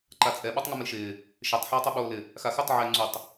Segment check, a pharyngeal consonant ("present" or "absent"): present